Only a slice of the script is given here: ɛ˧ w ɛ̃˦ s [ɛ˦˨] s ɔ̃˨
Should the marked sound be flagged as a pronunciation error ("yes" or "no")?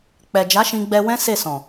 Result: yes